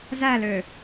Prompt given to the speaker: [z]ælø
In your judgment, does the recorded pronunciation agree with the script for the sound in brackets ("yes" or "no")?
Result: yes